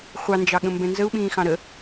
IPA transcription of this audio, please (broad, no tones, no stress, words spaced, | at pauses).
χʷɑnd͡ʒɑɠə̃ mbɛ̃nzəu̯ɓĩːxɑ̃ ɾə